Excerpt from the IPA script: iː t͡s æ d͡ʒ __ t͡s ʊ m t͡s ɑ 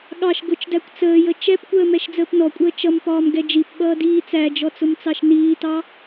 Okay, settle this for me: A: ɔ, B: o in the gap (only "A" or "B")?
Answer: A